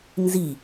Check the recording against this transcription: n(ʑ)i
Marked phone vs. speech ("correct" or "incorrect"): incorrect